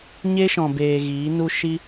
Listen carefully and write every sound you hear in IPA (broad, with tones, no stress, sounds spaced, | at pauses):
ɲ e˦ ʃ ɔ̃˨ b eː˨ ɣ iː˨˦ n u˦ ʃ i˦